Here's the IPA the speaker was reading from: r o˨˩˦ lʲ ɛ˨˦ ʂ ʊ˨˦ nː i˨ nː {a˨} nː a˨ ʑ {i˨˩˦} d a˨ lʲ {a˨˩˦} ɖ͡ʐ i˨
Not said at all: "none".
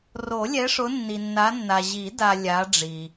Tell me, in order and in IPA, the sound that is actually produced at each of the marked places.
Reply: a˨˦, i˨˩˦, a˨˦

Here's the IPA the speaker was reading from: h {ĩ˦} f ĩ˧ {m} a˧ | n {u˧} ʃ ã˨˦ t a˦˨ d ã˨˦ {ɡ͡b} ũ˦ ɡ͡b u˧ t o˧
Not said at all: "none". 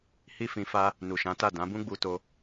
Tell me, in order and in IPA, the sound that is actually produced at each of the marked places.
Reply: i˦, f, u˨, b

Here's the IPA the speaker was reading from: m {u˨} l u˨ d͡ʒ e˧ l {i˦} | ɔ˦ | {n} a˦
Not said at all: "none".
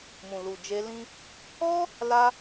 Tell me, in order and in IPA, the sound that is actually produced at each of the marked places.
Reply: ũ˨, ĩ˦, l

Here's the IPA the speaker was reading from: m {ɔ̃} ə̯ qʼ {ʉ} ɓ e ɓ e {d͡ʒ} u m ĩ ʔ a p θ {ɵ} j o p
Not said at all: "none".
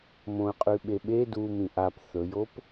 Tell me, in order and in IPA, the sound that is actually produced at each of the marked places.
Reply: õ, ʉ, d, ɵ

